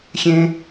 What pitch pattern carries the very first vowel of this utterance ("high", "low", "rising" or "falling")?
high